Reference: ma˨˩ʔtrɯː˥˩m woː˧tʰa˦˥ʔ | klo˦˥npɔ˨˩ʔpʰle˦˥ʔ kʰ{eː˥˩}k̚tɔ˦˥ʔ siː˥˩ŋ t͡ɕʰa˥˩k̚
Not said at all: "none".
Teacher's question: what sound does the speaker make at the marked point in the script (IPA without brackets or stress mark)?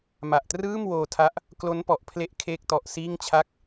eː˥˩